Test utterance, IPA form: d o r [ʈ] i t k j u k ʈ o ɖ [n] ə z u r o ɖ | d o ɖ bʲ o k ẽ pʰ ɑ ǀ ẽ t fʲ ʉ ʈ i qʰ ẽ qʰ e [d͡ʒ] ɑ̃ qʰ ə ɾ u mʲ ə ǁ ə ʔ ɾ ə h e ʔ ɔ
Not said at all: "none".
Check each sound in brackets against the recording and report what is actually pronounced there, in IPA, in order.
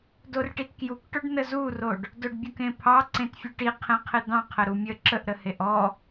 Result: ʈ, n, d̪

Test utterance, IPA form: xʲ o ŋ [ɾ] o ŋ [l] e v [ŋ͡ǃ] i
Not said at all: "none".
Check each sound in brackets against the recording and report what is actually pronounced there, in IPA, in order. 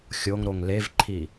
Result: ɾ, l, ǃʰ

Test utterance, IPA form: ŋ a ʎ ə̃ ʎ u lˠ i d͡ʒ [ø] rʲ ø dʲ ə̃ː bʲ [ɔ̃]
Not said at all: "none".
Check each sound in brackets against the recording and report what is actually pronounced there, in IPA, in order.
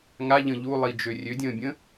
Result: ø, ə̃

